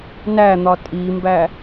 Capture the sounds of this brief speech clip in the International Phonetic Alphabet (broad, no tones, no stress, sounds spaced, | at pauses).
n æ n̪ ɒ tʼ i m b æ